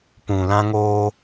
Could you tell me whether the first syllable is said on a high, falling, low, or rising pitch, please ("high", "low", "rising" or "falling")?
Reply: low